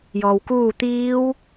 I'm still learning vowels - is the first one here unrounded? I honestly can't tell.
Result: no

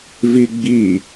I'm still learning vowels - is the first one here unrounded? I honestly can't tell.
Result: yes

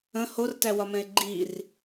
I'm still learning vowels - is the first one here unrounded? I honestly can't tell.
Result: yes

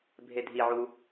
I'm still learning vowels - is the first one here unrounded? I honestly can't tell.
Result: yes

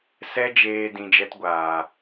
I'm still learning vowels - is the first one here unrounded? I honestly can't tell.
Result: yes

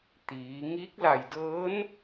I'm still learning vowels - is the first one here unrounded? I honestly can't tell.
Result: yes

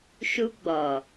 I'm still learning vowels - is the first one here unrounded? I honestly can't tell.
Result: no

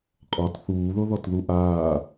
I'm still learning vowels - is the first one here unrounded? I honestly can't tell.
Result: no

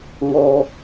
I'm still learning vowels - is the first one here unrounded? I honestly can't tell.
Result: no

